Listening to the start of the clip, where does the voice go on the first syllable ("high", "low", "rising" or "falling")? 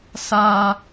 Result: high